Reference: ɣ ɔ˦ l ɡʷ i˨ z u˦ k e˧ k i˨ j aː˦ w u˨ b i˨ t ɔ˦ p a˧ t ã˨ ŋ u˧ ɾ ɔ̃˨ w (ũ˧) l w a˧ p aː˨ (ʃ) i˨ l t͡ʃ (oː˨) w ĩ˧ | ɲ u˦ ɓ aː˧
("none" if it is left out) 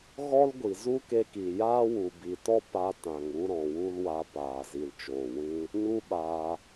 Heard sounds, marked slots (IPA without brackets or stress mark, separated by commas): u˧, z, oː˨